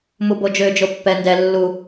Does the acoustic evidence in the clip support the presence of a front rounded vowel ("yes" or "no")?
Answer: yes